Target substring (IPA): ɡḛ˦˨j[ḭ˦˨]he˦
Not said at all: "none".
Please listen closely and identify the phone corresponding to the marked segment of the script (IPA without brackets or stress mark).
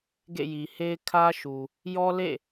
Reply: i˨